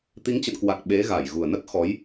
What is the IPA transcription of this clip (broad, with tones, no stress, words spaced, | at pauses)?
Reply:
t̪i˨˦ŋt͡ɕə̰˧˨nkwa˨˩k̚ ɓe˨˦ɣa˧˩jɣu˨˩ə̯ nə˦˥t̚ xɔ˨˦j